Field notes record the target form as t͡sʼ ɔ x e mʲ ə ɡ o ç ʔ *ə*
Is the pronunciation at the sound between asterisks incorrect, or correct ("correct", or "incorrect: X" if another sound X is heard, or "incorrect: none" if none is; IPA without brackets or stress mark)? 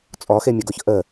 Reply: correct